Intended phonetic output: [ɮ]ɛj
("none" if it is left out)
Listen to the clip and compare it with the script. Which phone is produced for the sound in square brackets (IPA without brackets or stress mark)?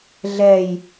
ɮ